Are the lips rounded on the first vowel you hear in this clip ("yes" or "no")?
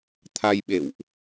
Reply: no